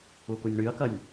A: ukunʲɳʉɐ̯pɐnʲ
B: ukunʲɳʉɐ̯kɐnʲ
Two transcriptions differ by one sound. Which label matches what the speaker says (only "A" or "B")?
B